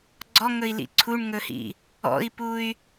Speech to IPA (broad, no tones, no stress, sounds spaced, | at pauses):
ɡ͡ǀ ɔ ŋ ɵ i̯ l ḭ ǀʰ u ɳ ŋ ɵ h ḭ | ɔ̰ i̯ p u y̯